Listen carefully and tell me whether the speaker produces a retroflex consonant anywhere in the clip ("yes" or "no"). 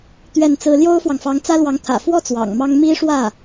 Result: yes